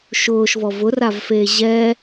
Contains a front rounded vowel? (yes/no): no